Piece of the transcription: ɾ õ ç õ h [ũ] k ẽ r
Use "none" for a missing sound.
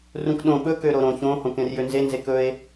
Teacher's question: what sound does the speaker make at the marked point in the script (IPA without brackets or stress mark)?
õ